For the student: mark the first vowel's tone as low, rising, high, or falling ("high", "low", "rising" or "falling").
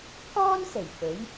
high